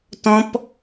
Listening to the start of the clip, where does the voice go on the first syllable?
high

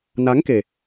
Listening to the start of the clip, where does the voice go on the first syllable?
rising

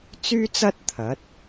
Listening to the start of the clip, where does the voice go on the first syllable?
high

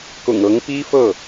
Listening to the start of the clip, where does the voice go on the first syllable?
low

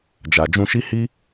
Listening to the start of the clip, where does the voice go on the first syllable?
low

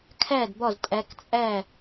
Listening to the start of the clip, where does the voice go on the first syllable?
falling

